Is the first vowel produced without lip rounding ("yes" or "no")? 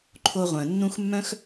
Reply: no